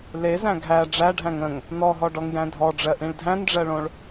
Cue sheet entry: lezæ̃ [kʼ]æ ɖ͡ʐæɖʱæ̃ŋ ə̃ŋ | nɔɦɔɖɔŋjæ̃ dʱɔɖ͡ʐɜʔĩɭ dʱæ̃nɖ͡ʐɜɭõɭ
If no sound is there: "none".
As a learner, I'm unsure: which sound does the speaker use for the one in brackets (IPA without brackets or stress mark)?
ɡʱ